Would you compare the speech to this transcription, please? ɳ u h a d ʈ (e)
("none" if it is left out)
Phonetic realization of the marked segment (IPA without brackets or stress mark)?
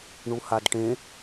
ẽ